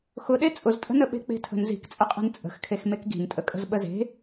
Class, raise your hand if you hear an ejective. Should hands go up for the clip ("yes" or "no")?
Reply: yes